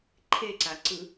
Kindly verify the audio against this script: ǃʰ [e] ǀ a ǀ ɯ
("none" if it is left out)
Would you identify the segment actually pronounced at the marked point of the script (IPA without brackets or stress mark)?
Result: e